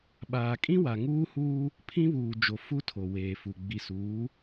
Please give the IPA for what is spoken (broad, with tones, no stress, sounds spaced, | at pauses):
ɓ aː˨ kʼ ĩ˦ w a˨ ŋ uː˦ h uː˦ | pʰ ĩ˦ β uː˨ d͡ʒ o˨ f u˦ tʰ o˨ w eː˨ f u˨ ɡ͡b i˨ s uː˨˦